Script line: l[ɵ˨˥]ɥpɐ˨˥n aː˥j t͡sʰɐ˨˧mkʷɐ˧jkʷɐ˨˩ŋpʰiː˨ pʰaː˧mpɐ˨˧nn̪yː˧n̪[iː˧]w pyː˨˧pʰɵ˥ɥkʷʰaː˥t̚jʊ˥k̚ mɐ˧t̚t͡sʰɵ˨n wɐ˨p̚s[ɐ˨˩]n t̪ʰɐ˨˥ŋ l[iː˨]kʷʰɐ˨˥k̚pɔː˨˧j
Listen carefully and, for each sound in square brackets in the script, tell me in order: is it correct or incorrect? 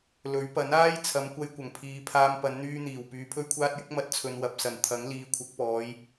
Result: correct, incorrect: iː˨˩, correct, correct

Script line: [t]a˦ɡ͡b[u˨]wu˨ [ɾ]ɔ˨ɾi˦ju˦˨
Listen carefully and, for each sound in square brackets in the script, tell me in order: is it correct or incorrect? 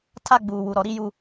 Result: incorrect: tʰ, incorrect: uː˨, correct

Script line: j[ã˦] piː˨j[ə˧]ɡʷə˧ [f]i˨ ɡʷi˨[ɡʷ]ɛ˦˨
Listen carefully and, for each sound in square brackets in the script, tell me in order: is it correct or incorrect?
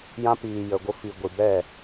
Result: correct, incorrect: ə˨, correct, incorrect: b

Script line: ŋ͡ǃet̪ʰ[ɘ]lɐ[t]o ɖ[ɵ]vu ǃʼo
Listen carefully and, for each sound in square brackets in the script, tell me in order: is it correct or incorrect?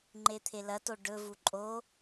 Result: incorrect: e, correct, correct

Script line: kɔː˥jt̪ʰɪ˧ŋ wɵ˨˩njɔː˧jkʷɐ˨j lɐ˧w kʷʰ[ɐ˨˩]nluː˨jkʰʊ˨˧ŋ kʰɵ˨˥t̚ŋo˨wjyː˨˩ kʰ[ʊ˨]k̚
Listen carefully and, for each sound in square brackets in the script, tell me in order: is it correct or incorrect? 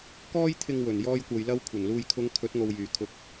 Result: correct, correct

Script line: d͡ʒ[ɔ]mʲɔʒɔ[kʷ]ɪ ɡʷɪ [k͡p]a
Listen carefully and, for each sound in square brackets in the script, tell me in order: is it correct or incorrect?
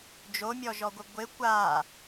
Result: incorrect: o, incorrect: ɡʷ, incorrect: kʷ

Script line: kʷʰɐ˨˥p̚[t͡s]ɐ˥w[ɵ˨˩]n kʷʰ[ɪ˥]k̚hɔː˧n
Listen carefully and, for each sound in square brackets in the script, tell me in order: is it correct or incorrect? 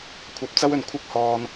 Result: correct, incorrect: ɵ˨, correct

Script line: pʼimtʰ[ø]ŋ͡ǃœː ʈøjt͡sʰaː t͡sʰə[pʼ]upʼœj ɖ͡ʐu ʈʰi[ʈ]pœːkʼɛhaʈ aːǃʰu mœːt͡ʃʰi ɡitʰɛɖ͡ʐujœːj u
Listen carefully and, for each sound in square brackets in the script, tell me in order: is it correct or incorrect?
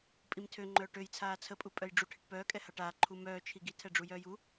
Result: correct, correct, correct

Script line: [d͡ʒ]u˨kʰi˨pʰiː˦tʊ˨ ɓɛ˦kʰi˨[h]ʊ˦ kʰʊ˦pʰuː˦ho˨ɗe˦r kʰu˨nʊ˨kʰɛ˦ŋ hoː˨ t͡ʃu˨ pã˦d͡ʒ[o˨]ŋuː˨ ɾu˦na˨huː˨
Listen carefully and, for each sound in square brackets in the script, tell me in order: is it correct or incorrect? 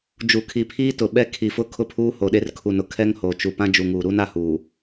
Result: correct, incorrect: f, incorrect: u˨

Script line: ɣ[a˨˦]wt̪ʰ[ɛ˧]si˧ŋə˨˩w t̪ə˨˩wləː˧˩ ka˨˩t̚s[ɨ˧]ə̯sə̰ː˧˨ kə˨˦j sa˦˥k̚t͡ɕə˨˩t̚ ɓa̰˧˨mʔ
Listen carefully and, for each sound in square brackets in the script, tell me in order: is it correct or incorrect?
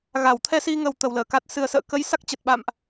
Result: incorrect: a˧˩, correct, incorrect: ɨ˨˩

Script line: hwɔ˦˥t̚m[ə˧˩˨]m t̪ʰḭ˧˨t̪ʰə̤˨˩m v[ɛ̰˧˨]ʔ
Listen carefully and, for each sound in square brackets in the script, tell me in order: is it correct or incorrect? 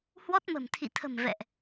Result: incorrect: ə̤˨˩, correct

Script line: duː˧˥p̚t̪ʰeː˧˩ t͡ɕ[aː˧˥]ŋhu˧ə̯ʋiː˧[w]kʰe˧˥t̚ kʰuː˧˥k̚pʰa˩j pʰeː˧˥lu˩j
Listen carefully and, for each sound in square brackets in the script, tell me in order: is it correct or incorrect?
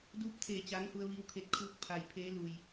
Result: correct, correct

